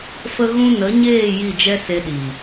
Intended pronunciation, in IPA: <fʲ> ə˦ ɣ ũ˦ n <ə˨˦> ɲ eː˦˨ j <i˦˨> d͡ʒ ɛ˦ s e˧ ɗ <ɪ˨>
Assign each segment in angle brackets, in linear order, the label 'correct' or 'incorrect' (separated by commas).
incorrect, correct, correct, incorrect